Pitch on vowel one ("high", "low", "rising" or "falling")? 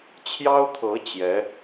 high